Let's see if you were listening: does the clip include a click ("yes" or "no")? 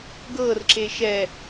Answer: yes